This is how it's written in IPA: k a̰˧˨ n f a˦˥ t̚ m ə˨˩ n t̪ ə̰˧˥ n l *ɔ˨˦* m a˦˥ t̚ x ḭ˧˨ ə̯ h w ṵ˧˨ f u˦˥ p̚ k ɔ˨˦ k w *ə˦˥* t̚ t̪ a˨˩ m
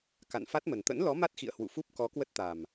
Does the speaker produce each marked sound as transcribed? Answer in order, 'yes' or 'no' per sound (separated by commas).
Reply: yes, yes